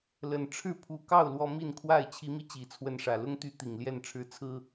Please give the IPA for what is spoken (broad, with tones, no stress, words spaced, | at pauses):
lə˨˩nʈ͡ʂʰɻ̩˥˨pʰu˨˦kɑ˥˨ʊ̯ lwɔ˦mi˥˨nkʰwa˥˨ɪ̯ t͡ɕʰi˨˦mi˧ t͡ɕi˨˩t͡sʰwə˨˦nʂä˨˩ lʊ˦ŋt̪y˨˦ t̪i˨˩ŋljɛ˥˨nʈ͡ʂʰɻ̩˦ t͡sʰɹ̩˦